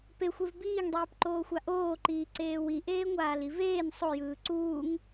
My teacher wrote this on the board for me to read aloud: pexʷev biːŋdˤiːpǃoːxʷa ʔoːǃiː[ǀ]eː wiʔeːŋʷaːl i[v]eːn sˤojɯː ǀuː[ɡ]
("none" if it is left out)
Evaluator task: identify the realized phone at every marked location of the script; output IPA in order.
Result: ǀ, v, ŋ

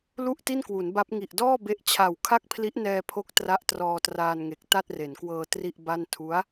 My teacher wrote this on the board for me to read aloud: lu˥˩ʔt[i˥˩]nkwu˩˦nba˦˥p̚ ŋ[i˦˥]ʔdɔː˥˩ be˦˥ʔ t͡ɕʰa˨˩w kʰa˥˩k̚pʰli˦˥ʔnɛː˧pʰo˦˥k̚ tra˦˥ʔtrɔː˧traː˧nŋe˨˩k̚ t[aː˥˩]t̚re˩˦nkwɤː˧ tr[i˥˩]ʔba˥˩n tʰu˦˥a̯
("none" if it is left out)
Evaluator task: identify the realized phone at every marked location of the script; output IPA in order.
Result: i˥˩, i˨˩, a˥˩, i˥˩

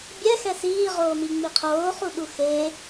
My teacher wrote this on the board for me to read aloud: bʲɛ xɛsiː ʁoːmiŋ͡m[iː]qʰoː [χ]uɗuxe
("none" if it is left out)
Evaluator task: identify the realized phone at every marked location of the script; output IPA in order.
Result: i, χ

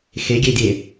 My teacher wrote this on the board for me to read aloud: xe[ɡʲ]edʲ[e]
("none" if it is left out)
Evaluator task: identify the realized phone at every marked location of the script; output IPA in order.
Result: ɡʲ, e

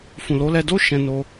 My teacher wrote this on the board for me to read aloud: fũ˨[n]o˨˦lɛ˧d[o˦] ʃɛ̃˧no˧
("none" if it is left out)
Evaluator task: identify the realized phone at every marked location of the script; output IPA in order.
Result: l, o˦

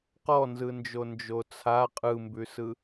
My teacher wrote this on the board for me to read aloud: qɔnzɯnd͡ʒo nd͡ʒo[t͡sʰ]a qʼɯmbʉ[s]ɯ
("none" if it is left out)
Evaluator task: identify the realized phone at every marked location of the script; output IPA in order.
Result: t͡sʰ, s

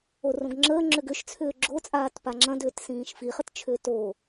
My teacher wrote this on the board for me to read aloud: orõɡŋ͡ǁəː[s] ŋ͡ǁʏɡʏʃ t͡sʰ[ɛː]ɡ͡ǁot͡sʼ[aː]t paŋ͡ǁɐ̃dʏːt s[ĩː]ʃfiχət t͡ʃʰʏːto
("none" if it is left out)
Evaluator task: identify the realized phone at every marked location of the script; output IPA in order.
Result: none, ʏː, aː, ĩː

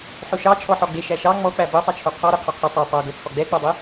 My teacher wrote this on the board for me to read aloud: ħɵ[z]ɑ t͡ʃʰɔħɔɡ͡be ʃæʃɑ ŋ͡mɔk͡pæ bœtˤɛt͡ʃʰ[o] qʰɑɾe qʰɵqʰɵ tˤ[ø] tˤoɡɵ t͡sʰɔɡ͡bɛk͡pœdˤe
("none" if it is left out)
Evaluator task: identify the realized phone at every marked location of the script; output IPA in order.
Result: ʃ, o, œ

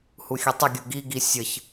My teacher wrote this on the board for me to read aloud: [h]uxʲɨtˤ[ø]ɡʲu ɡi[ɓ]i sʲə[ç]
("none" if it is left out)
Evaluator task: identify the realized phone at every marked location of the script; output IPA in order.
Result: h, ə, ɡ, ç

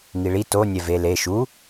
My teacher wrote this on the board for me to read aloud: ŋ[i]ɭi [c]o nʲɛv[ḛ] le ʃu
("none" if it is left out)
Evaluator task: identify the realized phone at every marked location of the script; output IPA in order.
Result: i, t, e

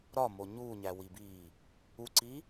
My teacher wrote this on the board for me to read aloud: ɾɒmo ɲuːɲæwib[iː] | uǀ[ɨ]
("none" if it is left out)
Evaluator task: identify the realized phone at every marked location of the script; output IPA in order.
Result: iː, i

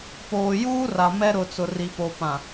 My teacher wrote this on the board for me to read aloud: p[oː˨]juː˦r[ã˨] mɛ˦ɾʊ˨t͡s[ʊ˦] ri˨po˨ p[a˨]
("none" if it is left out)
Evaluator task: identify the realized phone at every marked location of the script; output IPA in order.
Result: oː˨, a˨, ʊ˨, ã˨

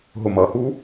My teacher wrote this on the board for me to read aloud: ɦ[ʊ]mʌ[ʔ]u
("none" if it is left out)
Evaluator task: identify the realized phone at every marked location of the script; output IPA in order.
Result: ʊ, h

